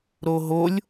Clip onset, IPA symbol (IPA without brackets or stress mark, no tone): ɾ